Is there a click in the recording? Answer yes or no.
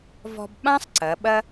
yes